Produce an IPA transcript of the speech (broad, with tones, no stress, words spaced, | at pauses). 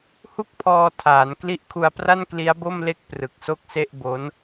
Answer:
hu˥˩k̚pʰɔː˧tʰaː˩˦n kli˦˥ʔkʰu˧a̯pra˥˩n kli˦˥a̯bo˥˩mle˥˩k̚ prɯ˨˩k̚so˥˩k̚se˥˩ʔ bo˦˥n